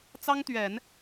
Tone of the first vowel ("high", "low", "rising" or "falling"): high